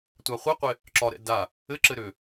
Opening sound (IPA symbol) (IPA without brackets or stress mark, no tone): tʷ